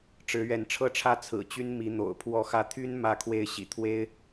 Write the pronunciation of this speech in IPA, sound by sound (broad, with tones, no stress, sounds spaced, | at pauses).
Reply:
ʈ͡ʂ ɻ̩˨˦ ɥ ɛ˨˦ n ʈ͡ʂʰ ɤ˦ ʈ͡ʂʰ ä˦ t͡sʰ ɹ̩˨˩ t͡ɕ y˦ n m i˨˦ n̪ o̰˨˩ ʊ̯ pʰ w ɔ˨˦ x ä˨˦ t̪ʰ y˦ n m ä˥˨ kʰ w e˥˨ ɪ̯ ɕ ḭ˨˩ t̪ʰ w e˦ ɪ̯